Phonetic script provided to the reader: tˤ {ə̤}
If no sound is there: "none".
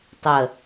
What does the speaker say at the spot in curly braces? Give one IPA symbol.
ə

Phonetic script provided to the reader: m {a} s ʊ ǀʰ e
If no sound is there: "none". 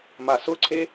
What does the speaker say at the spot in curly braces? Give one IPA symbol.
a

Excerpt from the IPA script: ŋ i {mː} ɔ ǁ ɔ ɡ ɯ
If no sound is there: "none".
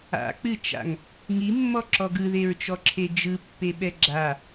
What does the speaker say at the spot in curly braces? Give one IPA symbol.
mː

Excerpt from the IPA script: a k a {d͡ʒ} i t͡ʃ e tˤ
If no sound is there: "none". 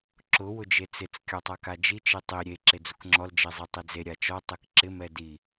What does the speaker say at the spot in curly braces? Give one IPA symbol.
d͡ʒ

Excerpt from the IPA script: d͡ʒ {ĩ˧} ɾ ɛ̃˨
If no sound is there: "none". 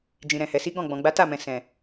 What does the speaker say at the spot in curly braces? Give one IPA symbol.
ĩ˨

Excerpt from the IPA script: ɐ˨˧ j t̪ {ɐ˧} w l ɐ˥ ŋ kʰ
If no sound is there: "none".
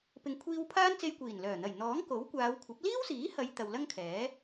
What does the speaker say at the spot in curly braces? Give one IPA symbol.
ɐ˨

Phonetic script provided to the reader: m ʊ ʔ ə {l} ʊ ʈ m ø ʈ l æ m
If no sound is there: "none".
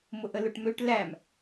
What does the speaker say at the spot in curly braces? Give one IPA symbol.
l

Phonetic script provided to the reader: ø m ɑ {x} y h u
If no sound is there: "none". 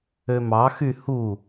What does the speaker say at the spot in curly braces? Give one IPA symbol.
x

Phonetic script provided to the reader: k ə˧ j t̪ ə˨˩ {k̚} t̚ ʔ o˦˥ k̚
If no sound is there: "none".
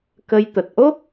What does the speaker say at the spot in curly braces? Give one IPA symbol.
none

